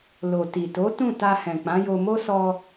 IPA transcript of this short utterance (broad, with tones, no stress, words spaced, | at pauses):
lo˨ti˨to˨˦ tũ˦˨ta˧hɛ̃˨ k͡pã˨˦jo˧mo˦ sɔ˧